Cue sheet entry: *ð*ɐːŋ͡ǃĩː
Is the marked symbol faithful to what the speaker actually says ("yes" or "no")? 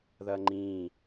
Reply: yes